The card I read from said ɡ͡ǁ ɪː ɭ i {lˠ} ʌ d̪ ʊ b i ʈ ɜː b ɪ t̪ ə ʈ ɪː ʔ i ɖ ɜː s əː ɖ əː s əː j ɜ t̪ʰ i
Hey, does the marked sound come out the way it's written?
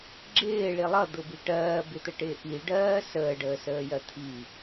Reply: yes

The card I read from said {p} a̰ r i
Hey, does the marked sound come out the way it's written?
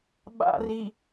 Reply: no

